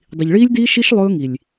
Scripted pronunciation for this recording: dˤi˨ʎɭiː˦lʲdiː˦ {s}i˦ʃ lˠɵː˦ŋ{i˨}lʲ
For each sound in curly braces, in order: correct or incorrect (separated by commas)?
incorrect, correct